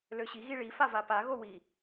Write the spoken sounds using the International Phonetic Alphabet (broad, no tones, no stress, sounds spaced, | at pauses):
l ø ɕ i ɣ i ɭ i f a v a p a ɣ o w i